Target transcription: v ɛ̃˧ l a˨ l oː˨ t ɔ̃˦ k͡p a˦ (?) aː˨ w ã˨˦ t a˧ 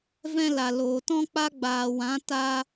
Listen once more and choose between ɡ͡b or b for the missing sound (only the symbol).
ɡ͡b